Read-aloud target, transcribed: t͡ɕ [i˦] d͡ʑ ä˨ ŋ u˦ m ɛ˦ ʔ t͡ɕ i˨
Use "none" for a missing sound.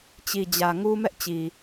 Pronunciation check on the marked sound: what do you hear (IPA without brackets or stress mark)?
i˨